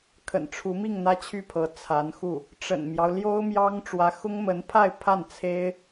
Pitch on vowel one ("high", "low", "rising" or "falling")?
low